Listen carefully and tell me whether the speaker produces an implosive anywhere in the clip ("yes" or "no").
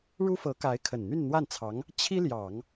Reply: no